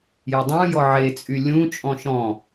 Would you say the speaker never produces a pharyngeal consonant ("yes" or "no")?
no